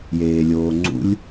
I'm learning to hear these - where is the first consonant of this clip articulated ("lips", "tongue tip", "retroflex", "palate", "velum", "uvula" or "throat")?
palate